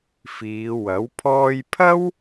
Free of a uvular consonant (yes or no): yes